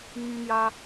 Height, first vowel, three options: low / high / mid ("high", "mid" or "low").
high